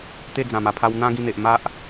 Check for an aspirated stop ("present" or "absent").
present